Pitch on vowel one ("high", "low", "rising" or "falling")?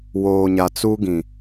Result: low